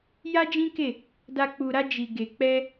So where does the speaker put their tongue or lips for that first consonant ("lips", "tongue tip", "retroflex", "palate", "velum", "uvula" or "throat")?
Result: palate